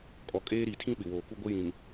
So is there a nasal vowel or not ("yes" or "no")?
yes